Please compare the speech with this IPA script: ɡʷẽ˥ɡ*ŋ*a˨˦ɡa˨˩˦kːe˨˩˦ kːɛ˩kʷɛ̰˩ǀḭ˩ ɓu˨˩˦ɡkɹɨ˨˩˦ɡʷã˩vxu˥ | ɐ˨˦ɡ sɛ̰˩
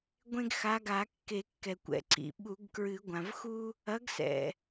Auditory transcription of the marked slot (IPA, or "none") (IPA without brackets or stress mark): x